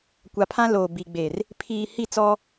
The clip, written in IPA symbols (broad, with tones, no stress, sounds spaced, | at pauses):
kʷ a˨ pʰ ã˦ l oː˨ b i˨ ɡ͡b e˨ r | pʰ iː˨ h i˦˨ t͡s ɔ˦